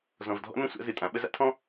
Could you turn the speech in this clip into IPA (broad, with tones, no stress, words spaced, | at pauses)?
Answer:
zɔ̃˨vdʱɔ̰˦nə̃˦ sʷa̰˦zɨ˨tʼã˨˦ ɓə˦za̰˦tʰɔ̃˦